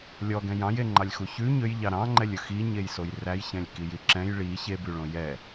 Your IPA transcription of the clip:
lʲ ɔ ɡ ɛ̃ j ɑ̃ j e ŋ͡ǃ ɑ lʲ x u ç ʉ ɲ ø j ʎ ɑ ɾ ɑ̃ ŋ͡ǃ ɛ lʲ ɵ x i ɲ e j s o j r æ j ç ɛ̃ lʲ k i j i ǁ ɛ̃ j ɭ i ç e b y ɭ õ j ɛ

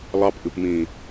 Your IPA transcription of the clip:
lˠ ɑ p ʔ ɨ p m ĩ

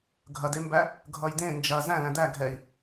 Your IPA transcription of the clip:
ɡʱ ɐ d e m b æ | ɡʱ ʌ j d ẽ n d͡ʒ ɐ z æ̃ l æ̃ d æ ɡʱ ɛ i̯

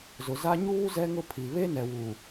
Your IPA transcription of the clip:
z ʊ˨ z a˦ ɲ uː˦ z ɛ˦ ŋ ʊ˦ pʰ i˨ β e˦ n ɛ˨ w u˨

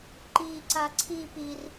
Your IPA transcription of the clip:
ǃ i ǀ a ǀʰ i p i r

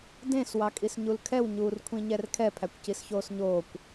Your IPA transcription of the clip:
d ẽ s w ɑ kʼ i s ɲ u l kʰ ɛ w ɲ uː r kʷʰ ĩ ɲ ɛ r kʰ ɛ pʰ æ kʷ c i s ç oː s ɲ oː kʷ

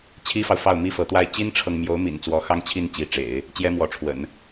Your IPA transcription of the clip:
t͡ɕʰ i˥ f ɑ˨ ʊ̯ f ɑ˥˩ ʊ̯ m i˥ f ɤ˧˥ t̪ w a˥ ɪ̯ t͡ɕ i˥ n ʈ͡ʂʰ ɤ˨ ŋ m j o˧˥ ʊ̯ m ḭ˨˩ n t͡s w ɔ˧˥ x ɑ˥ ŋ t͡ɕʰ i˥˩ n t͡ɕ i˧˥ ʈ͡ʂ ḛ˨˩˦ ɪ̯ | t͡ɕ j ɛ˥ m w ɔ˧˥ ʈ͡ʂʰ w ə̰˨˩˦ n

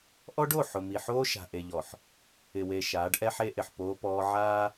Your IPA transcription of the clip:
ʔ ɔ˦ ɖ o˦˨ ħ ʊ˨ m i˨ ħ oː˦ ʃ a̤˨ ʔ e˨ ʎ ɔ˨ ħ | ɪ˨ w e˨ ʃ aː˨˦ ɖ ʔ ɛ˦ ħ e˦ ʔ ɪ˨ ħ p oː˦ p ɔː˦ ʕ aː˦

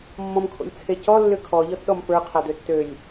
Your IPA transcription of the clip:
mː ɔ̃ m kʰ o̰ lʲ t͡sʰ e c ɔ lː ʏ kʰ ɔ ʎ ɔ t ɗ ɔ m p ə˞ qʰ a d̪ ø tː ø lʲ

